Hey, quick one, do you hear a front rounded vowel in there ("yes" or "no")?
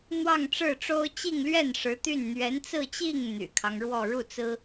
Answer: yes